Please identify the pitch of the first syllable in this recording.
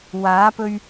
rising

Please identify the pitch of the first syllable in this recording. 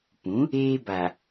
rising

